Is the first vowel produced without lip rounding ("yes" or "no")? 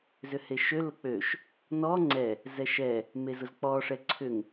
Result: no